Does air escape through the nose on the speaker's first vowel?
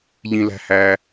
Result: yes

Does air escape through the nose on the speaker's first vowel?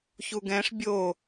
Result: no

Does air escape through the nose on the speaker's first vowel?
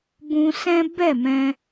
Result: yes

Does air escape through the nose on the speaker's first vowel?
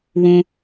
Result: yes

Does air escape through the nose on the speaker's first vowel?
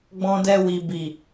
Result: yes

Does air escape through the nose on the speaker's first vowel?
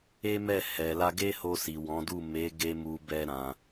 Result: no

